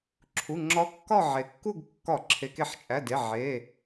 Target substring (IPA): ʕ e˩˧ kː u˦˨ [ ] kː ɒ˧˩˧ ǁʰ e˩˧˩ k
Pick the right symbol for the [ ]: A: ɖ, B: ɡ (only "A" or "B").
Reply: B